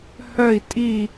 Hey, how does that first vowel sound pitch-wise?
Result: falling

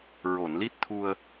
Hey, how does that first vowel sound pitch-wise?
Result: low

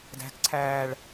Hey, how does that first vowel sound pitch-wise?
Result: high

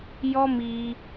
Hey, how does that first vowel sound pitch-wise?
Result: high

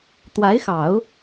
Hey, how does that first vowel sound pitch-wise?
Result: rising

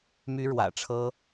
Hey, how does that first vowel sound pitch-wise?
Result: high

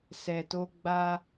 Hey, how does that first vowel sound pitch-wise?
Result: low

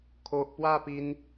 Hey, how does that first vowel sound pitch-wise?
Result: low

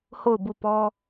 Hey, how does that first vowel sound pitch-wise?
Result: falling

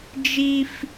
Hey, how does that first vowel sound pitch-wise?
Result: high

